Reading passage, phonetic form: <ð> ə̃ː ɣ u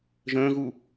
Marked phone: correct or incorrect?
incorrect